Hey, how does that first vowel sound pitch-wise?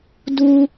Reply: high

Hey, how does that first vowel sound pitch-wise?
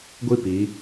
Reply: falling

